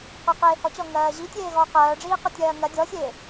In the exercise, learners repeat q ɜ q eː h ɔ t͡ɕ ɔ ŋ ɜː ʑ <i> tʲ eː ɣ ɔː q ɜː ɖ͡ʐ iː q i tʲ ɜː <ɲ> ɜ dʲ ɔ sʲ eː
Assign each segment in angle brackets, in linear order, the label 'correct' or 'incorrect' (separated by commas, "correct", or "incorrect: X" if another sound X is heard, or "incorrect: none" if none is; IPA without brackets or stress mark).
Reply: correct, incorrect: ŋ